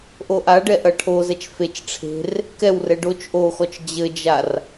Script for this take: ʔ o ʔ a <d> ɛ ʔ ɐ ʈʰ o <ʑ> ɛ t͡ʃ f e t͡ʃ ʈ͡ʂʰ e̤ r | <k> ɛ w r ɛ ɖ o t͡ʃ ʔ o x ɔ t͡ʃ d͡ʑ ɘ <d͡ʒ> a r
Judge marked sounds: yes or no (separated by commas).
no, no, yes, yes